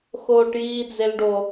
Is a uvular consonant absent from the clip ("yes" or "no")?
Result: yes